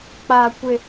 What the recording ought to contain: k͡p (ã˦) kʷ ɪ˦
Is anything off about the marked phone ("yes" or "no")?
yes